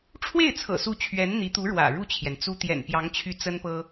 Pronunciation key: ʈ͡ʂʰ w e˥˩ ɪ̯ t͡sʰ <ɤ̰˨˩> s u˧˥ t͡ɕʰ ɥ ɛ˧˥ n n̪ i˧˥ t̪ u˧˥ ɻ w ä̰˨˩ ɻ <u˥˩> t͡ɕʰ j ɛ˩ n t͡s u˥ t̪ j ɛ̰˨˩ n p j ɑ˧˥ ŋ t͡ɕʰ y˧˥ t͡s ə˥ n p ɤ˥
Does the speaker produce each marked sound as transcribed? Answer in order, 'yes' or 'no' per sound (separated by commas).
yes, yes